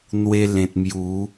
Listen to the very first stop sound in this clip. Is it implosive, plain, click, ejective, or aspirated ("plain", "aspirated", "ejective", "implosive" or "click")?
plain